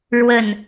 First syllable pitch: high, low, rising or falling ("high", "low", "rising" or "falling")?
low